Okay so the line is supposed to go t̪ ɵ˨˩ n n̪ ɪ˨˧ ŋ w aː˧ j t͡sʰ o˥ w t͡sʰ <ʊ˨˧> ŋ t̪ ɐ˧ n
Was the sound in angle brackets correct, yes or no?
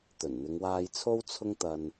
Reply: no